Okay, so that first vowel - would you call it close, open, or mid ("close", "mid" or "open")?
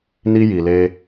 close